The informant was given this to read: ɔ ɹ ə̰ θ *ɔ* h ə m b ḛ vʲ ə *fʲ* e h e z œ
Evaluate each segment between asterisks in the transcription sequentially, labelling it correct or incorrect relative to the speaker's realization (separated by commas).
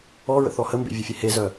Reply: correct, correct